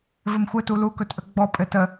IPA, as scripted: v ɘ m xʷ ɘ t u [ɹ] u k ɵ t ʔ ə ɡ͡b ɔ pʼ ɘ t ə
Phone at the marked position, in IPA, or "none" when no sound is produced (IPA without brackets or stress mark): l